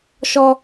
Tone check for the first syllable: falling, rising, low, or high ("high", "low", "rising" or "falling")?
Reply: high